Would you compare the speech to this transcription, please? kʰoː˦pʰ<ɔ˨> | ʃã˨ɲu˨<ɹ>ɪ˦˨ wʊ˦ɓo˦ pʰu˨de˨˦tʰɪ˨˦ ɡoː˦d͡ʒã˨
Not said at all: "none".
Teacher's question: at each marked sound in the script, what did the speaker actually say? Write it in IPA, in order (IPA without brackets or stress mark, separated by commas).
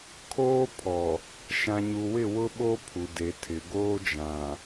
ɔ˨, w